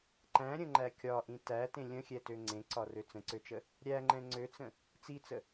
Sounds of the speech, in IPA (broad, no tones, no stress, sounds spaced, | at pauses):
ǃ æ̃ ɾʲ ə̃ ŋ͡ǃ æ kʲ ɒ ʔ ĩ t æ t ẽ lʲ ə̃ xʲ ɛ t ø ŋ͡ǀ ẽ ǀ ɒ r ø t͡s ə̃ ǀ ø t͡ʃ ə | ɾʲ æ ŋ͡ǃ ɛ̃ ŋ͡ǀ ø t͡s ə̃ | t͡s i t͡s ə